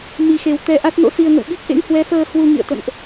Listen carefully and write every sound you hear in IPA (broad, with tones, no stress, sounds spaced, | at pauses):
m i˨˩ x e˨˩ w t̪ ɛ˧ ʔ a˦˥ t̚ n o̰˧˥ s i˧ ə̯ ŋ ə̰˧˨ w ɓ i˦˥ k̚ ʔ ḛ˧˥ ŋ h w ɛ˨˦ f əː˧ h w u˧ ŋ ḭ˧˨ ə̯ t̪ ə̰˧˨ n ʔ